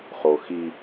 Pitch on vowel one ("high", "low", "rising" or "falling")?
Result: low